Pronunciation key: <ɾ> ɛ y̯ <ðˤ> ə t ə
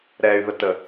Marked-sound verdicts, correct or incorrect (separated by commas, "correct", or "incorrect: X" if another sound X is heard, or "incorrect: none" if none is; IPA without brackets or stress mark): correct, incorrect: ð